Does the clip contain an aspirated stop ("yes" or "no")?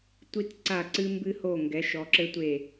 no